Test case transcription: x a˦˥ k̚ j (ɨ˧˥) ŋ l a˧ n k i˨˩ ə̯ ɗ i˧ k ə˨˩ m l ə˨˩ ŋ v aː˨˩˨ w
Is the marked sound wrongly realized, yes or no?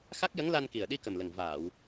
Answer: yes